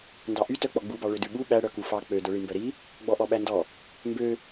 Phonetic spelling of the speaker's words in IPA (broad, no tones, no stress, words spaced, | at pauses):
ndɑʔy tœk͡pɔɡ͡bubɑ ɭødʉɓu ɓæɽœ kufɑ k͡pødœɭi mbœɾi | ɡ͡bɔʔɔɓændɔ | mbø